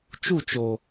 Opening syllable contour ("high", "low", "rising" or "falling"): falling